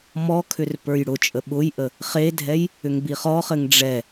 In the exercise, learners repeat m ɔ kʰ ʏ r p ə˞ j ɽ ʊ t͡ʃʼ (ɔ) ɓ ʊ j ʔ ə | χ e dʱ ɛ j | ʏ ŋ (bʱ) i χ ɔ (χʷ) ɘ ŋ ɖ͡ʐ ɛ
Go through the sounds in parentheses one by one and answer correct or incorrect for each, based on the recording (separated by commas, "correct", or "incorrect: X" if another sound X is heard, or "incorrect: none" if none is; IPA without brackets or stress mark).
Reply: incorrect: ə, incorrect: b, incorrect: χ